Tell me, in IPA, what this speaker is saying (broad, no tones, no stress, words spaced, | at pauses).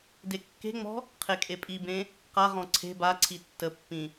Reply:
dekːe̤ŋ͡mɔ̤ | qʰekʼepʼibẽ | qaʁɔ̃ ǀʰe̤ baǀʰi tːəpːĩ